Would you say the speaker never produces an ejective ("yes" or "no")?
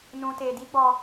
yes